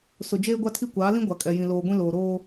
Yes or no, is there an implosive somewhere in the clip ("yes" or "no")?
no